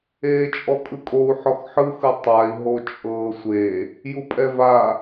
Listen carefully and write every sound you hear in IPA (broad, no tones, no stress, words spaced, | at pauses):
eːt͡ʃʼɔkʼɯkʼou̯ ħɔxħɯxɯ tˤai̯ ɦot͡ʃʼɤːsʷe | jupʼɛva